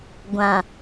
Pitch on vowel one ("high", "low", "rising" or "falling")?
low